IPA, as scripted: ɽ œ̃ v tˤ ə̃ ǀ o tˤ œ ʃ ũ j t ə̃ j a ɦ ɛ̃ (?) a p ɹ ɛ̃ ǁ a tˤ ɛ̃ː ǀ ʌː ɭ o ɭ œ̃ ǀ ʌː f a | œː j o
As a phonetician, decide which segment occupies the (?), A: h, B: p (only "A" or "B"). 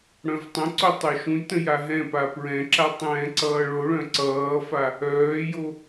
B